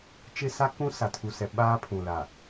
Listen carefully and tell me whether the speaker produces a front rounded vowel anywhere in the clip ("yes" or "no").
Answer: no